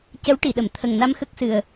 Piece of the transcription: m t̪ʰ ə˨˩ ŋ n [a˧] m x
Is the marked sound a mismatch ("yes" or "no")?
no